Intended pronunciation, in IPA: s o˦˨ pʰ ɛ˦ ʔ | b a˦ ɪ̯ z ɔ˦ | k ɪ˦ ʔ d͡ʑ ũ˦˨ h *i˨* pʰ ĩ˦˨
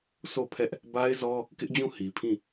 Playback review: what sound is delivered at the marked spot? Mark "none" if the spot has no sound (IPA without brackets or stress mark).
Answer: i˨